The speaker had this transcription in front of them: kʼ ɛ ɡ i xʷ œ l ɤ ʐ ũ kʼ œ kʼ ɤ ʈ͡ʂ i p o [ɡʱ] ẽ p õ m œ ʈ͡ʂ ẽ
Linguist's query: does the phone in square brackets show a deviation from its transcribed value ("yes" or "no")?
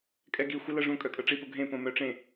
no